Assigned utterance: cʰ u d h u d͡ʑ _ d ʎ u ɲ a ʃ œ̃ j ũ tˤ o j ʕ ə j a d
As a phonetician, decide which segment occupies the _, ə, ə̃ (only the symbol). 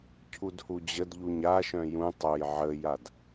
ə